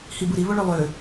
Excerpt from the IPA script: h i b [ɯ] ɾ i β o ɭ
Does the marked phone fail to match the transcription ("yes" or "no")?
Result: no